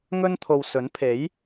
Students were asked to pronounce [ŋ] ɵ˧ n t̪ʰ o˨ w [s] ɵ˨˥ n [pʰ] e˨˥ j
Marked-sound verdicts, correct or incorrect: correct, correct, correct

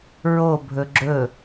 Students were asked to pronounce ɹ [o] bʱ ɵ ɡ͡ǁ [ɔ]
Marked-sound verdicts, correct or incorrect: correct, incorrect

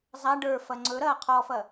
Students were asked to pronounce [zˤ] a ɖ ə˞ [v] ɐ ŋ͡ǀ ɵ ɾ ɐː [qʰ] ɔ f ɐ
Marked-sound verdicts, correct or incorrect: correct, incorrect, correct

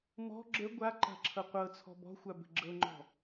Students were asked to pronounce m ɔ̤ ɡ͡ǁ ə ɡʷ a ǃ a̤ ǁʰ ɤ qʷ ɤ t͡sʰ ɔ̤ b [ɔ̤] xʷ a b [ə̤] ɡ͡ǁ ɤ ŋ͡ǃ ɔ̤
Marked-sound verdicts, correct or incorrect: correct, correct

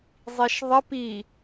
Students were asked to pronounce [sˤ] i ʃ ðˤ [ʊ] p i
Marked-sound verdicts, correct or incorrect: incorrect, incorrect

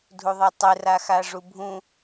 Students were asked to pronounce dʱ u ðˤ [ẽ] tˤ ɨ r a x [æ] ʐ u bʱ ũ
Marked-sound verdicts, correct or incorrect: incorrect, incorrect

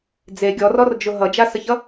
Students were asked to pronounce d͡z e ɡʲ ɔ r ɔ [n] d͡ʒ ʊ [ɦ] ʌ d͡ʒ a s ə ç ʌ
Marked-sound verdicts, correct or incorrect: incorrect, correct

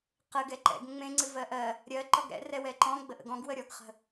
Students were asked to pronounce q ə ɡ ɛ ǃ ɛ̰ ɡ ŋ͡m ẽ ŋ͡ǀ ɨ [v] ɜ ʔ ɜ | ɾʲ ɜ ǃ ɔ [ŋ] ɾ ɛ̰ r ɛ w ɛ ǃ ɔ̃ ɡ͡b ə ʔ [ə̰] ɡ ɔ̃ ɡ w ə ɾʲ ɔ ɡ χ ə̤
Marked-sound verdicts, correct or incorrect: correct, incorrect, correct

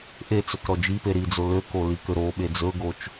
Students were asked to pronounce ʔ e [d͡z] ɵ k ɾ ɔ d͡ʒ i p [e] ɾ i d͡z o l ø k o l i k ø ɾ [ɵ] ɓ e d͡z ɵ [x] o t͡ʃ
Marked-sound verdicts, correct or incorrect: incorrect, correct, incorrect, incorrect

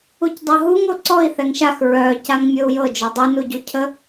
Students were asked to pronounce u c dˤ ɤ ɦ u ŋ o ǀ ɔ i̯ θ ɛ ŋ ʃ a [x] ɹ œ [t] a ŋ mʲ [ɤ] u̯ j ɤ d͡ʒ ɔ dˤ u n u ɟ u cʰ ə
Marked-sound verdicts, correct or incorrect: correct, incorrect, correct

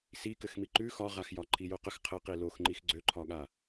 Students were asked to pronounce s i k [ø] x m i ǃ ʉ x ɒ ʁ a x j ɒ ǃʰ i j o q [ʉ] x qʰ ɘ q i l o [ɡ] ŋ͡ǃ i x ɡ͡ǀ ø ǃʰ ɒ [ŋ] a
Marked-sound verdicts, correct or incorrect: incorrect, incorrect, incorrect, incorrect

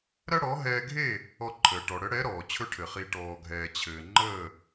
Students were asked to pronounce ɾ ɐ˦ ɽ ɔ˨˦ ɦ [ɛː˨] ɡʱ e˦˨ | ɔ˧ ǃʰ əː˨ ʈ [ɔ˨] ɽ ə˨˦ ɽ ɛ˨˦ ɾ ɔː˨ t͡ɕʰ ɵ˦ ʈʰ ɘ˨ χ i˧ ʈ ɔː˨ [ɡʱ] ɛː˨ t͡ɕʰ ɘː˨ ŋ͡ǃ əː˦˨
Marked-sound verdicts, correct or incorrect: incorrect, correct, correct

